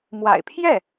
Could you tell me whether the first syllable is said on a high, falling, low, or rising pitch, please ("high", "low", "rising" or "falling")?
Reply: low